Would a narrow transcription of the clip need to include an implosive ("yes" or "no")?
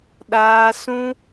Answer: yes